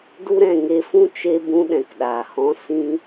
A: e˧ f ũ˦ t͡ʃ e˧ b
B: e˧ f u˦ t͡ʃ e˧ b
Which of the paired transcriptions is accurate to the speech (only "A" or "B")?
A